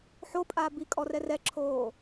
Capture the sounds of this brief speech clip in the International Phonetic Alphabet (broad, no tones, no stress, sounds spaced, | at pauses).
ħ o pʼ a b i kʼ ɔ r ɛ r ɛ ǁʰ oː